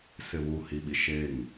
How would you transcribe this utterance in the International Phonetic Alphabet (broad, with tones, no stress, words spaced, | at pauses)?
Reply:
sɪ˨βu˨ hi˨ɓi˨ ʃe˦˨ŋ